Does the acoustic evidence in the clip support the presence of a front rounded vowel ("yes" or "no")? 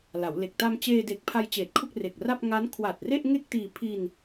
no